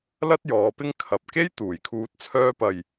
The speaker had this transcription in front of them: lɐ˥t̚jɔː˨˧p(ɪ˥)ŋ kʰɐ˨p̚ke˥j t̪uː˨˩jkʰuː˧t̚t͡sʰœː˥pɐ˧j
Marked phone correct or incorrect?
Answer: correct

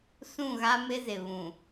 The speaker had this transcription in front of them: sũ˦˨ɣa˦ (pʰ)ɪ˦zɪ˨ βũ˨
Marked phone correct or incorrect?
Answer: incorrect: m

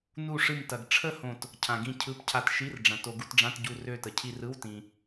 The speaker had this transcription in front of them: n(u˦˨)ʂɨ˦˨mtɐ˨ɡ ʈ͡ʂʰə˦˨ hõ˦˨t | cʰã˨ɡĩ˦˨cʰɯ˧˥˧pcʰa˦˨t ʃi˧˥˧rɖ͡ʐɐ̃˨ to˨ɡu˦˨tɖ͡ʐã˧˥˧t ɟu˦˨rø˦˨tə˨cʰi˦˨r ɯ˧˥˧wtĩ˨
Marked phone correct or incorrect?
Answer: correct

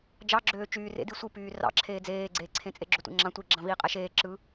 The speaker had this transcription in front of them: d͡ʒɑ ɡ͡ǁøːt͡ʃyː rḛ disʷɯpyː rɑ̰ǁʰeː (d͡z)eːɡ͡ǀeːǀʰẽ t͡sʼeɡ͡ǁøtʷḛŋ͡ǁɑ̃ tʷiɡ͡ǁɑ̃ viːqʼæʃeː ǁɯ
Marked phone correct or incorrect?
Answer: correct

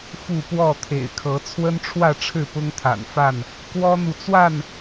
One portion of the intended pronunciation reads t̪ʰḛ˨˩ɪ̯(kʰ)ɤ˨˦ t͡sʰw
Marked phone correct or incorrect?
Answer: correct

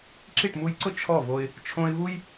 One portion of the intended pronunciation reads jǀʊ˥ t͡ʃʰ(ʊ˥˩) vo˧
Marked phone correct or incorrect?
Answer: incorrect: ɔ˥˩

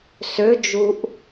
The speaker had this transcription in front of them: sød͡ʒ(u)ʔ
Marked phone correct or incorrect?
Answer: correct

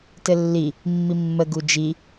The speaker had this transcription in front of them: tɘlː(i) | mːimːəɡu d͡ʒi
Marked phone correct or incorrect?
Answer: correct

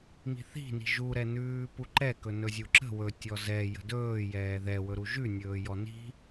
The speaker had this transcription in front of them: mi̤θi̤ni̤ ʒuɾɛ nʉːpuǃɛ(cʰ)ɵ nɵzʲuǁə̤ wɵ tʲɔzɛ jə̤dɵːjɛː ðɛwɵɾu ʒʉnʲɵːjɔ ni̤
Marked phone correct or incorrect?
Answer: incorrect: k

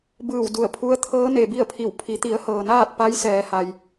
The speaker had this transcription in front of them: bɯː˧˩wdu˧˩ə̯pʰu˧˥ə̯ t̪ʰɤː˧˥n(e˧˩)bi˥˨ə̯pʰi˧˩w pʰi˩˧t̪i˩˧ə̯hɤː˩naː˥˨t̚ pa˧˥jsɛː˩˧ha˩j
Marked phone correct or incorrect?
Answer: incorrect: e˩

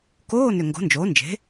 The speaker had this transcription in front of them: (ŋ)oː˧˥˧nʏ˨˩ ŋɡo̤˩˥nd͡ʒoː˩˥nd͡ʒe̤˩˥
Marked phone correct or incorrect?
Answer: incorrect: k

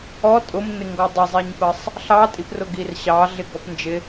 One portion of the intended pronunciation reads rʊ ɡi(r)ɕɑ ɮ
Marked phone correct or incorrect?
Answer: correct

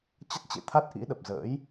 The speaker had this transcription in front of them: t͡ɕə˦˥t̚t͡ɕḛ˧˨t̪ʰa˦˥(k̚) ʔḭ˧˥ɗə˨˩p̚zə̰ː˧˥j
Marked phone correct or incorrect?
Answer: incorrect: t̚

